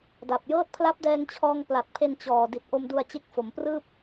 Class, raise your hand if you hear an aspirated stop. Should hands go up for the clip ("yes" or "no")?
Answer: yes